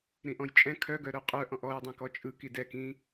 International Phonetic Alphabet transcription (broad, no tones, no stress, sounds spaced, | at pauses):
ɾ ĩ ʔ ɔ̃ j t͡ʃʼ ɛ̃ kʰ œ ɡ œ ɾ œ qʼ œ ʔ ɔ̃ ʔ ɔ j dˤ ĩ k ɔ t͡ʃʼ ɯ k i d ɛ k ĩ